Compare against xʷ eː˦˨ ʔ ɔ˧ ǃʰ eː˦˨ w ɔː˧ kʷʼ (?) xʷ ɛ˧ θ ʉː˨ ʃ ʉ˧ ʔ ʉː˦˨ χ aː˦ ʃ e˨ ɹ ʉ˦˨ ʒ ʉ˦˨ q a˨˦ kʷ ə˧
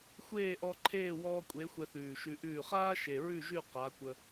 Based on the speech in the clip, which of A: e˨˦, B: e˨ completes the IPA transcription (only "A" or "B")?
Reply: A